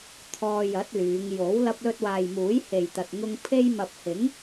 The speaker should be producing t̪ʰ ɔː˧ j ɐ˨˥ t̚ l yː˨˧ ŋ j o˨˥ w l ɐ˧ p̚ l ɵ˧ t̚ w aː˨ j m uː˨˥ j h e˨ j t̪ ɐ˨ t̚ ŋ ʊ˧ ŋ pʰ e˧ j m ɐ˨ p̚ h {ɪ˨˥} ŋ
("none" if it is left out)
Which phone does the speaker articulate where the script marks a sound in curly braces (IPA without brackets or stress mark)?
ɪ˨˥